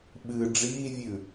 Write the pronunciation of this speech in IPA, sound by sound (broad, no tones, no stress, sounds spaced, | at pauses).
ɓ ɨ ɖ͡ʐ iː vʲ ʉ